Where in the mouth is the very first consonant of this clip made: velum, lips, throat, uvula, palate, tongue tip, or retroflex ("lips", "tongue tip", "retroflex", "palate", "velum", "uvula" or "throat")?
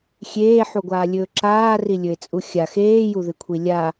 velum